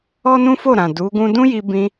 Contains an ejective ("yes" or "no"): no